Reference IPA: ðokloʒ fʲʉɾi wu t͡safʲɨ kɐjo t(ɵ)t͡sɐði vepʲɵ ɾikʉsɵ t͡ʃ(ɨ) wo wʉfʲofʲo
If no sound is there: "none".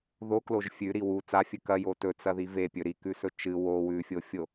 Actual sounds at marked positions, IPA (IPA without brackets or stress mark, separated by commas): ɵ, ɨ